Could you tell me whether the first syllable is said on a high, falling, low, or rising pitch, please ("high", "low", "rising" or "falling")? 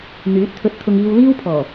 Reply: rising